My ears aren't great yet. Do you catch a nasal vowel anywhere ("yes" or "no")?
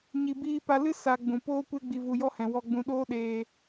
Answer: yes